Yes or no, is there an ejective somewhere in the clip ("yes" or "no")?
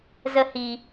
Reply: no